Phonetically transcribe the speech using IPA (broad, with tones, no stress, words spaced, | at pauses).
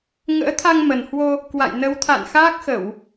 ŋə̰ː˧˥t̪ʰa˧ŋmə˨˩nhwo˧ | kwa̰˧˨j nə˨˦wt̪ʰa̰˧˨n xaː˦˥k̚xə˧˩˨w